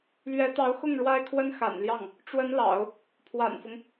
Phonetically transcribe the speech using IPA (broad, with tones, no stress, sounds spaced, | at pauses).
l ɥ ɛ˧˥ t̪ ɑ˧˥ ʊ̯ x ʊ˥˩ ŋ ɻ w a˥ ɪ̯ kʰ w ə˥ n x a̰˨˩ n l j ɑ˥˩ ŋ | ʈ͡ʂ w ə˧˥ n l ɑ̰˨˩˦ ʊ̯ | pʰ w a̰˨˩ n f ʊ˦ ŋ